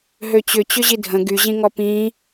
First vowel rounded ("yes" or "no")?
yes